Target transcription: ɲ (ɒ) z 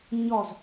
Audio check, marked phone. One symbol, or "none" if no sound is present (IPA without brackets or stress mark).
ɒ